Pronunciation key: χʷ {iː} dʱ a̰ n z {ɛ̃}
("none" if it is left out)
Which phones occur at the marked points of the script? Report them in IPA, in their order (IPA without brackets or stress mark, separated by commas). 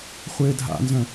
ɪː, œ̃